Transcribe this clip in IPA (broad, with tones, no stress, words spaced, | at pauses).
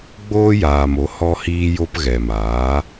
ɡ͡boː˦jaː˨mo˨˦ hɔ˧hiː˧jo˧p ɣɛ˨maː˨˦